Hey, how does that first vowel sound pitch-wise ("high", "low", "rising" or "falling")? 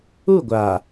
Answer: falling